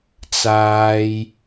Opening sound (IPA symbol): t͡s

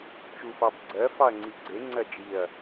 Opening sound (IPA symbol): t͡ʃ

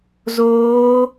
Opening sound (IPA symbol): z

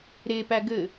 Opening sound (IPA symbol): ɾ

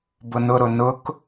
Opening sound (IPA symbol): b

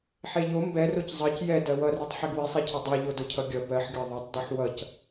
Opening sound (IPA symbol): ħ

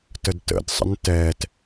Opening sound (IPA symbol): t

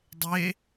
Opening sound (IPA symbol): dˤ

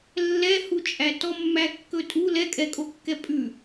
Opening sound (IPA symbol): lː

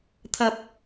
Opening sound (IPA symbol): t̪ʰ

